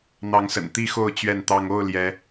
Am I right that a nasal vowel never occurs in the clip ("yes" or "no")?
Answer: yes